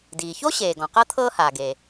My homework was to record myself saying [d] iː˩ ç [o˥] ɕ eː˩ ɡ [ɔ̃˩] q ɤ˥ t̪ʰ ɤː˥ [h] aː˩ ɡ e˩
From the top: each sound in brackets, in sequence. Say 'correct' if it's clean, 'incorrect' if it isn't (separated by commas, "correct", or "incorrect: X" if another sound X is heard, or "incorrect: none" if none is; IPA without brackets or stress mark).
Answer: correct, correct, correct, correct